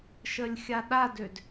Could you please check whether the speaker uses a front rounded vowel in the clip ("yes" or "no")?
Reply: yes